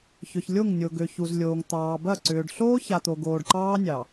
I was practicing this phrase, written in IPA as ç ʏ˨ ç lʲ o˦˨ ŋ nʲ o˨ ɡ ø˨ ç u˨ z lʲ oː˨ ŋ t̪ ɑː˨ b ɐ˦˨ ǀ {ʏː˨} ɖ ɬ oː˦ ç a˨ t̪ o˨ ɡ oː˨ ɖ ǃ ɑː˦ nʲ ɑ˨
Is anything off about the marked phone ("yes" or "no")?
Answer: no